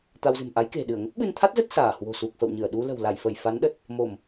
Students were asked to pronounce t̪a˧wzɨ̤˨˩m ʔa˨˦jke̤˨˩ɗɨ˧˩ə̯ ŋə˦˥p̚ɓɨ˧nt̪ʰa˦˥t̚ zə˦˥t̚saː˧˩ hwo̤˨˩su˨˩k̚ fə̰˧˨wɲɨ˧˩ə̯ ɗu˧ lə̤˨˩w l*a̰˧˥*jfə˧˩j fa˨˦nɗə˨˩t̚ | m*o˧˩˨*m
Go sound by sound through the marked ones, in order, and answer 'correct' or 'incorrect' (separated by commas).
incorrect, correct